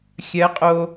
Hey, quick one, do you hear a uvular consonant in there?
yes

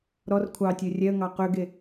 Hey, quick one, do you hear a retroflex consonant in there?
no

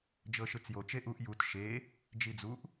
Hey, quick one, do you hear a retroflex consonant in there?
no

